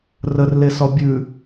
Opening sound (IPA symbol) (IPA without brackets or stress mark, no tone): r